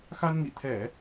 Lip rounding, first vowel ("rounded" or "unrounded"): unrounded